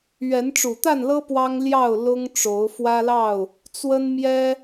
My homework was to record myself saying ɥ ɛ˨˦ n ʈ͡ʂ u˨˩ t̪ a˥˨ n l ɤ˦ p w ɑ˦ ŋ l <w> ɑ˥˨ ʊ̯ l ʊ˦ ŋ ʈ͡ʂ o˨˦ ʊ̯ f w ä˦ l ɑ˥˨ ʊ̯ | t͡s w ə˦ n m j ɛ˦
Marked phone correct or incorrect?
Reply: incorrect